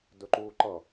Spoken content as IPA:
dɵǃuːǃʌ

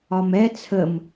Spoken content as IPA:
ɒmɛ t͡sʰəm

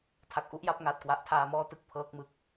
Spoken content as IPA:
tʰa˨˩k̚ʔu˦˥ʔja˥˩p̚ ŋaː˨˩t̚kwa˨˩ʔtʰaː˧ mɔː˥˩ tɯ˥˩k̚pʰɤː˦˥k̚mɯ˨˩k̚

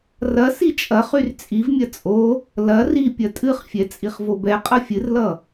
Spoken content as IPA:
rɐ sit͡ʃʼɐχyr t͡sʼivmʲɐ t͡sʼo | lɐ ri pʲɐtʼɨχfʲɛ t͡sʼiχvobɛqʼʌ fʲɨrlʌ

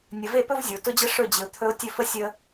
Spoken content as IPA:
nʲə˨ve˦˨pɵ˦v zʲo˨ tʊ˦d͡ʑə˦ ʂɵ˦˨d͡ʑɪ˨ʊ̯t̪ʰɵ˦ʊ̯ tʲɵ˦fə˦ sʲə˨

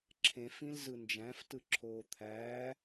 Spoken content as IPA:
ǁʰẽf ĩlzɯnd͡ʒæ̃f tɯǁʰoːt̪ʰæː

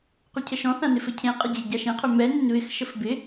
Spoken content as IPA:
qycʰəʃɔ̃θã nɪfɘcʰẽqʼɪ d͡ʑeɟaʃẽqʰø mɛ nønβɪxʃəf bɪ

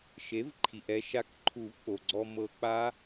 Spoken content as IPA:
ʃe˩˥vǃʰi˩ʔɛ˧ʃa˧k ǃʰu˨˩˦vk͡po˩ɡ͡ǀɔ˧ mɤ˧ k͡pa˦˥

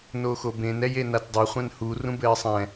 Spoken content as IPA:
noxobẽn ɛjenatdˤe χʷɛ̃nhu rũbɘːsˤɛ̃

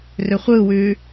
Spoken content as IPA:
rʏχʷɯwʉ

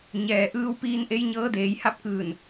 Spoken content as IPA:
ɲɛː˩ʔɯː˧wpiː˧n ʔe˧˥jɲɤː˧˥deː˩˧j ha˧˥p̚kɯː˧˩n

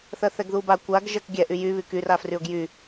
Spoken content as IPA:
θɜθɛɡðuba kʷaɡ ʒɜkɡʲɛ ʔyjy βykyr afryʊ̯ɡjy

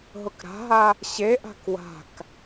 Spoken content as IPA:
ɦʊkɾa̤ɦa | ɕeʔa̤k wa̤k

